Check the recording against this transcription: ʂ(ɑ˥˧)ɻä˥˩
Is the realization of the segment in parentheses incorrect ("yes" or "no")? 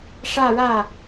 yes